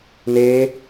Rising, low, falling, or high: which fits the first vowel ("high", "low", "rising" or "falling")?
high